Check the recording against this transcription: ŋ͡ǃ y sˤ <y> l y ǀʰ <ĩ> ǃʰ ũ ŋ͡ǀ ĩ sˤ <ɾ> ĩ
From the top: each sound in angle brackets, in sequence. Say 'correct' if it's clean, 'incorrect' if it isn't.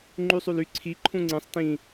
correct, incorrect: i, incorrect: t

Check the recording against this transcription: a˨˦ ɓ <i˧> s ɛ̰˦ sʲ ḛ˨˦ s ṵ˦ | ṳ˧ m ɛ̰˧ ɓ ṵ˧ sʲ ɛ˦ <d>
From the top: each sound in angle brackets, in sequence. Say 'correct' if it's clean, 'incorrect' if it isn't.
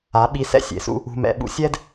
correct, correct

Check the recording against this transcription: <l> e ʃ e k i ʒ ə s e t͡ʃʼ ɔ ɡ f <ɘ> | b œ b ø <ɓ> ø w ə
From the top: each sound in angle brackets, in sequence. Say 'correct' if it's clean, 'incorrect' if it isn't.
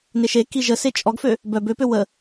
incorrect: n, incorrect: ø, incorrect: p

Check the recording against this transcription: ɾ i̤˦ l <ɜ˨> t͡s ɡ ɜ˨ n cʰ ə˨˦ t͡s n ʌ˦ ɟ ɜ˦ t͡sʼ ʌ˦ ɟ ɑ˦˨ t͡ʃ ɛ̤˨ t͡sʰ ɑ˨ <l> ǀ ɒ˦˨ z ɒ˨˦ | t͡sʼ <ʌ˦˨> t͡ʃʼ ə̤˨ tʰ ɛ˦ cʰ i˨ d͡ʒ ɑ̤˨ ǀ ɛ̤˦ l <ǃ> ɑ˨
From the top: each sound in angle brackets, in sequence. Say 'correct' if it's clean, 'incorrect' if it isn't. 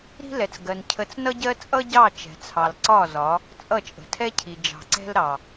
incorrect: ɛ˨, correct, correct, incorrect: ɾ

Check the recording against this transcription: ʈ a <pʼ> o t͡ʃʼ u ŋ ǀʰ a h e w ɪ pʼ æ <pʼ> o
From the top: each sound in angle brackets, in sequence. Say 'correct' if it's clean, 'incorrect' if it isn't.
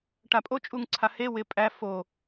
correct, incorrect: f

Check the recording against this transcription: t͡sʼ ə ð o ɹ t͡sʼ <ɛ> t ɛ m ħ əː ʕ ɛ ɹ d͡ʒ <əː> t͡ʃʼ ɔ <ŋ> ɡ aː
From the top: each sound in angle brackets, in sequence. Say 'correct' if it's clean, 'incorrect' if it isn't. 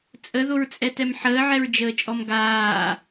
correct, correct, incorrect: m

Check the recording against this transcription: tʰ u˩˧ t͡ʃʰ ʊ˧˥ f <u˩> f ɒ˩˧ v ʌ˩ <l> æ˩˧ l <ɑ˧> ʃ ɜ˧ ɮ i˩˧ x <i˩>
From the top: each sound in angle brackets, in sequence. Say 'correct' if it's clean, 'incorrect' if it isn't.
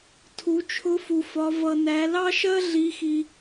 correct, incorrect: n, correct, correct

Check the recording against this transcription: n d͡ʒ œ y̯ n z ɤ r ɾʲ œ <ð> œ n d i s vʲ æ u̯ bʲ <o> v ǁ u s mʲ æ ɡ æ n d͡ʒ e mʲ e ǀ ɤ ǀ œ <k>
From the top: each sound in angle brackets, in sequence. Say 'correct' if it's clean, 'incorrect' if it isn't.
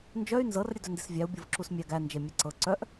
incorrect: d, incorrect: ɤ, incorrect: ʔ

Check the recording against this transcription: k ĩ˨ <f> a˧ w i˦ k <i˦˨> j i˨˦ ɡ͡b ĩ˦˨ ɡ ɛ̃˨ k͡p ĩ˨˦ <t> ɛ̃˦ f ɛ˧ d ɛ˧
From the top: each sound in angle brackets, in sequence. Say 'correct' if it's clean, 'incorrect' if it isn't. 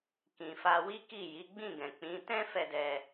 correct, correct, correct

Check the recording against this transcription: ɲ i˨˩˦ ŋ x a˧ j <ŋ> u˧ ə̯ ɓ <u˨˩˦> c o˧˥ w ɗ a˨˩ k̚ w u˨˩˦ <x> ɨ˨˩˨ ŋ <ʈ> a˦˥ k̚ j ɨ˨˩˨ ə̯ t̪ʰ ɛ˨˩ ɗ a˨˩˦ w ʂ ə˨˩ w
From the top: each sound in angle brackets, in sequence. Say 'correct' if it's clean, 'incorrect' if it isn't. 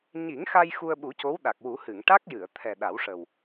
incorrect: x, correct, incorrect: h, correct

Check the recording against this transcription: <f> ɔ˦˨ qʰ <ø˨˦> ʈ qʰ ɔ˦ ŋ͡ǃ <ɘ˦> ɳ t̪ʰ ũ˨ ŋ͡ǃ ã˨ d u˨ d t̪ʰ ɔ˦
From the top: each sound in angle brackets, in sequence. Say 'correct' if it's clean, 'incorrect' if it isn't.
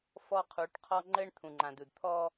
correct, incorrect: u˨˦, correct

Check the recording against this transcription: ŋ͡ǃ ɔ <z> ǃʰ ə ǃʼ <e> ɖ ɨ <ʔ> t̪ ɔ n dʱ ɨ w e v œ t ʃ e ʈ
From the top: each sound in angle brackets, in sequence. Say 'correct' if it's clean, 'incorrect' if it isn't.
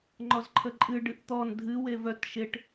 correct, incorrect: ɨ, correct

